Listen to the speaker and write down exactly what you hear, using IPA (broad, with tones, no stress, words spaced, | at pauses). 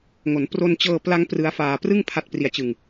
ŋo˩˦npro˧nt͡ɕɤː˧pla˦˥ŋ prɯ˦˥a̯faː˧ prɯ˥˩ŋ pʰa˦˥t̚pri˧a̯t͡ɕɯ˧ŋ